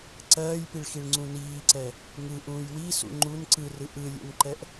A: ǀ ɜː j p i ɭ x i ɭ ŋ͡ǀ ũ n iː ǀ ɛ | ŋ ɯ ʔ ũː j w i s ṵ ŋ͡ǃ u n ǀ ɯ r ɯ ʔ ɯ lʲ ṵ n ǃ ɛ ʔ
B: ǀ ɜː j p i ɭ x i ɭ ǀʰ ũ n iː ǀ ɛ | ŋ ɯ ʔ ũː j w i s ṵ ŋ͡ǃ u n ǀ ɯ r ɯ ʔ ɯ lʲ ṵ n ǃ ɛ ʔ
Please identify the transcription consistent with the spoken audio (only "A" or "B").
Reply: A